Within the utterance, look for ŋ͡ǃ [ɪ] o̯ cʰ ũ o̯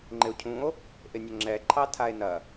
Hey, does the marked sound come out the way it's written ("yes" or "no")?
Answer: yes